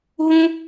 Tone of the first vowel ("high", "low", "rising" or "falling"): high